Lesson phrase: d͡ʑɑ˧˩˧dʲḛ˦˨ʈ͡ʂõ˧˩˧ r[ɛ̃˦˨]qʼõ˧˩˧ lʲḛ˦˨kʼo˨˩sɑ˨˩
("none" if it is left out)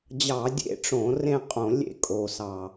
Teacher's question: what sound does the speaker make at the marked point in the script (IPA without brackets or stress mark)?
ẽ˦˨